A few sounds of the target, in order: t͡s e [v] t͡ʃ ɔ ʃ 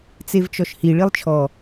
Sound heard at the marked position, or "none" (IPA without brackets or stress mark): v